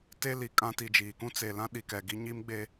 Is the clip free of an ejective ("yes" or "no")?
no